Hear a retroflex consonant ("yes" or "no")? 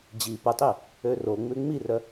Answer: no